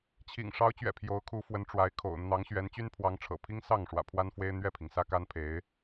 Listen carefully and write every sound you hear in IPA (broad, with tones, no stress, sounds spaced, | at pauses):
t͡ɕʰ ḭ˨˩ ŋ ʂ ɑ˧˥ ʊ̯ t͡ɕ ɥ ɛ̰˨˩ pʰ j o˧˥ ʊ̯ kʰ u˧˥ f w ə˧˥ n ʈ͡ʂ w a˧˥ ɪ̯ kʰ o̰˨˩ ʊ̯ n̪ ɑ˧˥ ŋ ɕ ɥ ɛ˧˥ n t͡ɕ y˥ n pʰ w ɑ˧˥ ŋ ʈ͡ʂʰ ɤ̰˨˩ pʰ i˥ ŋ s ɑ˥˩ ŋ ʂ w ä̰˨˩ pʰ w a˥ n f w e˥ ɪ̯ n̪ ɥ ɛ˥˩ pʰ i˩ ŋ s ä˥ k a˥ n pʰ e˧˥ ɪ̯